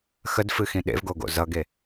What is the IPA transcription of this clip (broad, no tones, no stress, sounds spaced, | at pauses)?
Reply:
x ə d f ɨ x ĩ ɗ ḛ v ɡ o ɡ o̰ z ʌ ɡ e